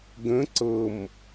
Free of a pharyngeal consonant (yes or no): yes